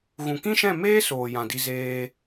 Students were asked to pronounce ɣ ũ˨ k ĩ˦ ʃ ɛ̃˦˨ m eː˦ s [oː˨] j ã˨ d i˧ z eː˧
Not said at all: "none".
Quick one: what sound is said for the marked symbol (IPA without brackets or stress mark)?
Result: oː˨